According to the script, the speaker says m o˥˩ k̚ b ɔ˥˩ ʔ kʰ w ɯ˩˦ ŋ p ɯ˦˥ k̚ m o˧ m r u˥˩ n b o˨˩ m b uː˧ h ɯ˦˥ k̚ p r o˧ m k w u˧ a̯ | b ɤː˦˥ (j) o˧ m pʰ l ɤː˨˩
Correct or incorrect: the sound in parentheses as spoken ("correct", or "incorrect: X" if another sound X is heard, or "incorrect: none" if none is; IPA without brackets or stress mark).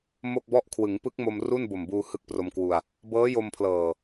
correct